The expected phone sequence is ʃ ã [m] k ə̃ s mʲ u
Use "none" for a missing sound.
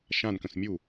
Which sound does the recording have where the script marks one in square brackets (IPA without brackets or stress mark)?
n